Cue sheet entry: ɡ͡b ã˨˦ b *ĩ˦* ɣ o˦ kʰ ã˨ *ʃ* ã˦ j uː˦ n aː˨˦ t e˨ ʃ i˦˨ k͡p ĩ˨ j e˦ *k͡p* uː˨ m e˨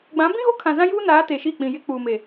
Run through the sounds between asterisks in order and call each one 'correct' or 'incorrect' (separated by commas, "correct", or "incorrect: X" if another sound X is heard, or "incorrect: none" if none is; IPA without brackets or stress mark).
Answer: correct, incorrect: z, correct